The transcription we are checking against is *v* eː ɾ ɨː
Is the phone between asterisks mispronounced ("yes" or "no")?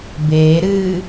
yes